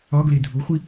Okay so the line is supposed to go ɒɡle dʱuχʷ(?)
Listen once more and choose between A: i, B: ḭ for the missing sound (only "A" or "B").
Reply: A